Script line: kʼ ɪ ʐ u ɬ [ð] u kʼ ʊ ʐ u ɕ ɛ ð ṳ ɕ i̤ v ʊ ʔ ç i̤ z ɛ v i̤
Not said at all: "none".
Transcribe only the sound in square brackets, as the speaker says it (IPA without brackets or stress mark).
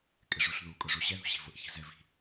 ð